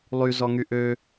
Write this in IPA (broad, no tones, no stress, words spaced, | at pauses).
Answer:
lˠy zɔŋyʔø